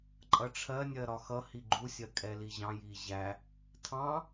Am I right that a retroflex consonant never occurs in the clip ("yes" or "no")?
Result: no